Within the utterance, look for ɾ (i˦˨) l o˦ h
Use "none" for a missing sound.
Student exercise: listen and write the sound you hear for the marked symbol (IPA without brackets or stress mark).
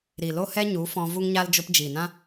i˨